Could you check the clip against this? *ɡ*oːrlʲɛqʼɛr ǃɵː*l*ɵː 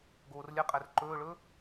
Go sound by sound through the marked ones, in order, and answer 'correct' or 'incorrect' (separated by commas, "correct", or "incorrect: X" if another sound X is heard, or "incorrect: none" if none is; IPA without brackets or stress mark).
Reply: correct, incorrect: ɭ